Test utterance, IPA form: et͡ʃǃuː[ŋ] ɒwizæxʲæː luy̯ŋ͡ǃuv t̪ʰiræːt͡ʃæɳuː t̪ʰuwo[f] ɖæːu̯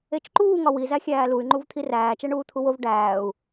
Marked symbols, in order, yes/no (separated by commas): yes, no